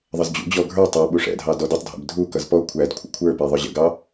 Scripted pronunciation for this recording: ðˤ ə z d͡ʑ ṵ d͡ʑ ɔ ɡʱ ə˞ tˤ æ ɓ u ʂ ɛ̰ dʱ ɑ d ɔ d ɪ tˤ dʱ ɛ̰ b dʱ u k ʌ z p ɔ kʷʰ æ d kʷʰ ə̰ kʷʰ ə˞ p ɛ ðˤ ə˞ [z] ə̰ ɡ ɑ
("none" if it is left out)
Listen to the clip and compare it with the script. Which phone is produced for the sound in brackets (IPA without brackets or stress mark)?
ʑ